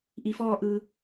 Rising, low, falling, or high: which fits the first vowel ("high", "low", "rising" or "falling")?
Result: low